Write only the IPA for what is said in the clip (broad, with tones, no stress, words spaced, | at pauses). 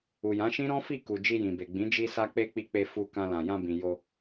u˨jã˨˦ʃĩ˦ ɾɔ̃˦fi˦˨ku˨ d͡ʒi˧jĩ˨be˨ɡ͡bĩ˨˦ d͡ʒi˧sa˧k͡pe˧ k͡pi˧k͡pe˧ fu˧kã˧lã˨ jã˧bĩ˨ jo˧